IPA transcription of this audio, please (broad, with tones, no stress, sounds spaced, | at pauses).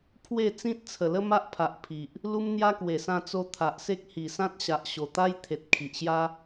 pʰ w e˥˧ t͡s ĩ˦ t̚ t͡sʰ ə˨˩ l ə˦ m a˦ ʔ pʰ a˨ ʔ pʰ i˨ ʔ | l u˦ m n̪ j a˦ k w e˨˩ s ã˧ t͡s o˧ t̪ʰ a˨ ʔ s e˦ k̚ h i˨˩ s ã˦ t̚ ɕ a˨ ʔ ɕ o˨˩ t̪ a˦ j t̪ʰ e˨ t̚ kʰ i˨ ʔ ɕ j a˦